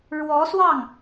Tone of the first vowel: rising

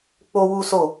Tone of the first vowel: high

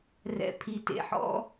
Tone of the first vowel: low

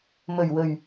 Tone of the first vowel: low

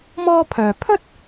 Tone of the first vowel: high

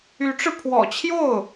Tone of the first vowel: rising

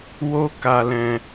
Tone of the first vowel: high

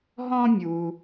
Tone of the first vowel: high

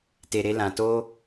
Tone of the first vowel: low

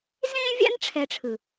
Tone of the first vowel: high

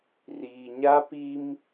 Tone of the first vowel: low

